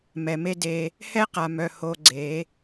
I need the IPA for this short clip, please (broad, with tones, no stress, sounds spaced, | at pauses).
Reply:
m ɛ˨ m e˦ d e˧ | h ɛ˦ q a˨ m œ˨ h o˧ ɡ͡ǀ e˨˦